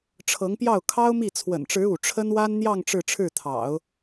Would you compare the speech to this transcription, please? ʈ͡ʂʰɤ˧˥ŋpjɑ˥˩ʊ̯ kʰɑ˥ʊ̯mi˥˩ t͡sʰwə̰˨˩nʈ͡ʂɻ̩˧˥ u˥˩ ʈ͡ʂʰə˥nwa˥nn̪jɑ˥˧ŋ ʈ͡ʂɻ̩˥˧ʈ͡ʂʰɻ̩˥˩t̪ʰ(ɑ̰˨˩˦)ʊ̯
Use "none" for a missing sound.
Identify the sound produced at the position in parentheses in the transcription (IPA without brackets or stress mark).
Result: ɑ̰˨˩˦